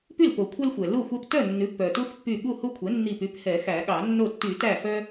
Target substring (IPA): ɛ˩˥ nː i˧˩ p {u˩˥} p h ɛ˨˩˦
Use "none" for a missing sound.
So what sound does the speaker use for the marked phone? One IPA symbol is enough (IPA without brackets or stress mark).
y˩˥